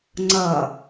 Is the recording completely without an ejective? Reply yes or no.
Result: yes